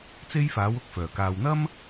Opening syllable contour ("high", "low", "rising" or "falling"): high